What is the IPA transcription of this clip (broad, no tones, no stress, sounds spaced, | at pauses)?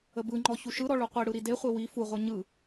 ə b ɯ ŋ͡ǃ ɔ ç u ʃ ɯ ɾ ɔ ɭ u qʷ i ɽ ɯ ɾ i d e χʷ e w i f u ʁʷ ɯ ɲ ɯ